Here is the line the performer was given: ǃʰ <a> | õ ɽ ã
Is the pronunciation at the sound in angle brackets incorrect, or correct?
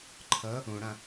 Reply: incorrect